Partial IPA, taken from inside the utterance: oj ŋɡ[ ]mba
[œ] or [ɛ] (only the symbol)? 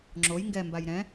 ɛ